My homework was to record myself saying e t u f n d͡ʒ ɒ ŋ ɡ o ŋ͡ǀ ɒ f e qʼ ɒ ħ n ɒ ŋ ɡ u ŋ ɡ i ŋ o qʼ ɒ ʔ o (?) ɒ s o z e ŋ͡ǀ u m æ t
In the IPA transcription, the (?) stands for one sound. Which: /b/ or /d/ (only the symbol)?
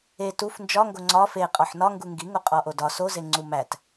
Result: d